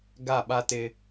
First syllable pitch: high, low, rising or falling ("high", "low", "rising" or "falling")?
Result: falling